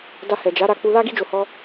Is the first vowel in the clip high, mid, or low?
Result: low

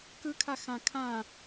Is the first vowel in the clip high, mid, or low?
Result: high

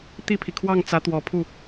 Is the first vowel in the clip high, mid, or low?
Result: high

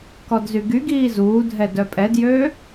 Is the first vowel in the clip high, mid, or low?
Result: mid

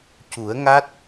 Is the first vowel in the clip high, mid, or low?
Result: high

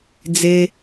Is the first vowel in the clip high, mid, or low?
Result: mid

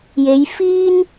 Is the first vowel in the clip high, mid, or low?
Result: mid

